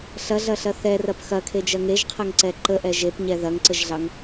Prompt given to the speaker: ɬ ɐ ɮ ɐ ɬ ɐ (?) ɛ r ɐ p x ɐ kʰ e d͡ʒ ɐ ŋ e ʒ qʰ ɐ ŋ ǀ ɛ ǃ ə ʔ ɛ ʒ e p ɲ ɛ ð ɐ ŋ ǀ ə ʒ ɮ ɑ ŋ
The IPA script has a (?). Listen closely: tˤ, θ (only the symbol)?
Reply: θ